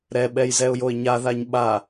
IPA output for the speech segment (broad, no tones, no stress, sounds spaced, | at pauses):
ɾ ɛ ɓ ɛ j z ɛ ʊ̯ j o ɪ̯ ɲ a ð a ɲ ɓ a